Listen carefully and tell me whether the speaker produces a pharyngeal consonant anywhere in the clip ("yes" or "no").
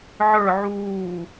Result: yes